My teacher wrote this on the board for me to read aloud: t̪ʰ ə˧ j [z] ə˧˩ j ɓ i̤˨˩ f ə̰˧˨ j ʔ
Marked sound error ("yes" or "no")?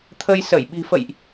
yes